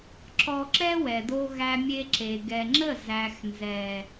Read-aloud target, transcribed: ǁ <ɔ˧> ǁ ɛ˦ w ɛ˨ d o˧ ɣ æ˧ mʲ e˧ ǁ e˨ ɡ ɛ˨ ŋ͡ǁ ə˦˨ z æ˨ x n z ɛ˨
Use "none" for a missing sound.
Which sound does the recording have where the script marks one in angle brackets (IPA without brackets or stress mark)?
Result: ɔ˧